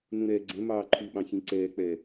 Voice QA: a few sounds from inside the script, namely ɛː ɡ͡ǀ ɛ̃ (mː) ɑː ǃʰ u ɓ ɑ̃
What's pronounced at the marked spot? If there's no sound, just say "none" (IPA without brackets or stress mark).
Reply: m